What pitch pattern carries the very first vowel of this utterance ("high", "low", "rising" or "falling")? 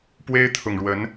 high